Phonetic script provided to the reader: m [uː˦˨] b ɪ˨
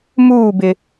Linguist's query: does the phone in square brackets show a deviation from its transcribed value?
no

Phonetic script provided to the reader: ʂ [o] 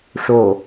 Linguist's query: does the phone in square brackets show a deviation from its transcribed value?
no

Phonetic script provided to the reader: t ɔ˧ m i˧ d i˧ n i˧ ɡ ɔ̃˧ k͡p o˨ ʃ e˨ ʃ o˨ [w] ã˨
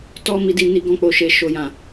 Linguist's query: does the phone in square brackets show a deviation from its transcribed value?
yes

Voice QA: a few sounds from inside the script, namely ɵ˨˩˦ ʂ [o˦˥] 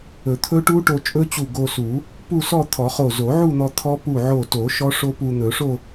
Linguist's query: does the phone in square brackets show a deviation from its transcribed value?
yes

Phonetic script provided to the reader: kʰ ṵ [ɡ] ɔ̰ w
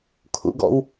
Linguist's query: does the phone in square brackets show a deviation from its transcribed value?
no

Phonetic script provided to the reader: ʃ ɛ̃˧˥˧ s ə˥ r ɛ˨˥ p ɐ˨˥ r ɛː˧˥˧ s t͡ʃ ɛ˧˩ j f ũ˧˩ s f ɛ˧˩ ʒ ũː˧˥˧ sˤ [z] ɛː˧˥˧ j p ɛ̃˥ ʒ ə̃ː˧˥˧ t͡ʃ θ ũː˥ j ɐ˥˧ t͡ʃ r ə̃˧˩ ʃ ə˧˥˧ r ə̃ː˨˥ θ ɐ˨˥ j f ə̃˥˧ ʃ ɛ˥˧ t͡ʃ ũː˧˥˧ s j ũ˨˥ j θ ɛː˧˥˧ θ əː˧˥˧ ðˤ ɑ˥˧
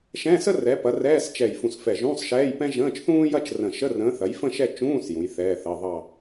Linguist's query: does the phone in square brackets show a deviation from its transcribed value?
yes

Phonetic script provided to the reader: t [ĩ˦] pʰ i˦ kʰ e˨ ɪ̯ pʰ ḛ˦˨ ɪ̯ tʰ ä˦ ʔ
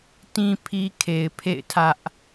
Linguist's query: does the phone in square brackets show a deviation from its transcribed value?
no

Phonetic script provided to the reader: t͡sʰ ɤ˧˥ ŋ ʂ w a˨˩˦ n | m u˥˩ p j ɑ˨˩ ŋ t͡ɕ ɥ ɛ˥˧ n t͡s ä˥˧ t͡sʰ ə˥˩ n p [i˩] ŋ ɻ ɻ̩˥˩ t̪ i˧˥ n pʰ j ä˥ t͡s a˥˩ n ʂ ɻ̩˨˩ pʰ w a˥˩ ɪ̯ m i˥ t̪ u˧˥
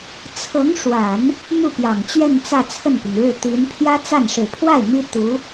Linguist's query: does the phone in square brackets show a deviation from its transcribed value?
no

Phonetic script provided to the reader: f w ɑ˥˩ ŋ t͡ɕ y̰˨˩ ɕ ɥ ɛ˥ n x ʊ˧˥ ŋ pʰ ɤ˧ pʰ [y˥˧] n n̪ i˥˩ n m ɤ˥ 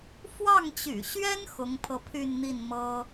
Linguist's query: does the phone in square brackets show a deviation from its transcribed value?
no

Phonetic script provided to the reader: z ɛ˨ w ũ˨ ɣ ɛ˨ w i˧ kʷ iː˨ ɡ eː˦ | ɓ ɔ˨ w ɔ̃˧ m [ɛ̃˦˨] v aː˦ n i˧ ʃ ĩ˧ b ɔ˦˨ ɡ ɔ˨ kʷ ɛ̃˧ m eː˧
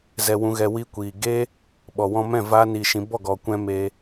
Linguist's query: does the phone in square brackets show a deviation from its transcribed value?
no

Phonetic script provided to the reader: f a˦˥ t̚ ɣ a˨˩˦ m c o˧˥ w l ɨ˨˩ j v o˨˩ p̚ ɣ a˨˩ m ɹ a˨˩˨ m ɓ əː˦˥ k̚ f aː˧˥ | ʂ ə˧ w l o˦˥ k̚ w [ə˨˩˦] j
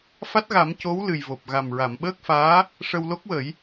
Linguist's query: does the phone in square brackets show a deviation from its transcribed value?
no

